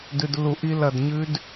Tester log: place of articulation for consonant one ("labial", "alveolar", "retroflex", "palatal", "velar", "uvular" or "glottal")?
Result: alveolar